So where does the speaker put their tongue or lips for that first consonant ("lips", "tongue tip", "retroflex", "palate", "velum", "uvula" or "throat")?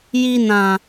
palate